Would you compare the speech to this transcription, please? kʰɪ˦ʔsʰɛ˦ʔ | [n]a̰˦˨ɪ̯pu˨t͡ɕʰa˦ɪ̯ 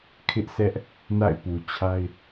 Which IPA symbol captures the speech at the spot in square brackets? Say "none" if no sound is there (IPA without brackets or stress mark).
n